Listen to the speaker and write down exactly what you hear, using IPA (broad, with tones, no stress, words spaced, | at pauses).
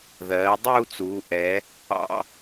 ðɜː˩˧ dˤuː˥˧t͡suː˩˧ʔɛ˩˧ | ɑ̰˧